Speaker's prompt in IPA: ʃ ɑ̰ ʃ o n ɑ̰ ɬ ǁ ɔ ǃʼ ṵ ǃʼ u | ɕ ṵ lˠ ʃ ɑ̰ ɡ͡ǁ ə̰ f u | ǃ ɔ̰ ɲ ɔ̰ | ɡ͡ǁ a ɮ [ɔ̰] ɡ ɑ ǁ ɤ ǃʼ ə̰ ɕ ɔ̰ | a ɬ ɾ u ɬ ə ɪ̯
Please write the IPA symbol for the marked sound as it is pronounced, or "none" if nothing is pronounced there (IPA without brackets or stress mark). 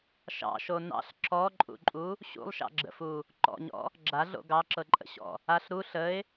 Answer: o̰